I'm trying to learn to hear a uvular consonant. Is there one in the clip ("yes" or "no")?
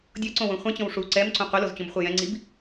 yes